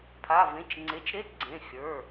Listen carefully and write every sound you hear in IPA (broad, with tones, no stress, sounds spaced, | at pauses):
pʰ a˩˧˩ v ẽ˩˧˩ t͡ʃ ŋ͡ǀ e˩˧˩ t͡ʃ ɾ e˧˥˧ t ɡ͡ǀ ẽ˩˧˩ xʲ ə˞˩˧˩